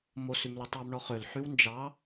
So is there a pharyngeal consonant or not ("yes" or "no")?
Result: yes